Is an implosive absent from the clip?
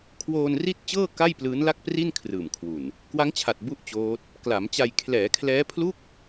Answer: yes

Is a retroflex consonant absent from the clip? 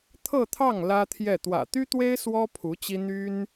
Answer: yes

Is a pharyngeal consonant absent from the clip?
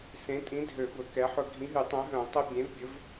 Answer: no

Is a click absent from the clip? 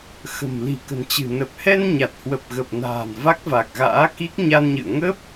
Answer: yes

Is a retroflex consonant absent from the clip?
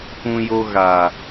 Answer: yes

